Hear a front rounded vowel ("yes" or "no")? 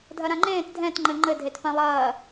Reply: no